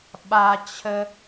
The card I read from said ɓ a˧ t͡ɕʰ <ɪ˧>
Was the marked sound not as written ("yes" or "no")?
yes